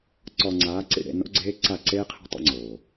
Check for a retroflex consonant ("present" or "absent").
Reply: present